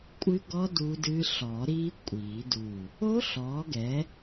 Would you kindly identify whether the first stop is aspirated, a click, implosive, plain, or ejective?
ejective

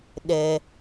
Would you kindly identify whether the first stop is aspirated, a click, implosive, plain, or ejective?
implosive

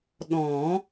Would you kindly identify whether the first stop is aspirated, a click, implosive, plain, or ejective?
implosive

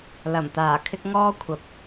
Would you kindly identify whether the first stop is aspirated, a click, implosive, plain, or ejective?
plain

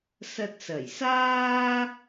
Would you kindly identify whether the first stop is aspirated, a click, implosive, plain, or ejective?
plain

